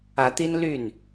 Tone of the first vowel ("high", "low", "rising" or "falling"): rising